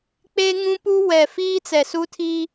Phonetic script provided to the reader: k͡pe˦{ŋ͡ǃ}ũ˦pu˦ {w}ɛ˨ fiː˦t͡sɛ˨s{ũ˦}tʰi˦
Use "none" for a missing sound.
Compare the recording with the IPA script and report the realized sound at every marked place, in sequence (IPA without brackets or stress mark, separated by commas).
ŋ, w, u˦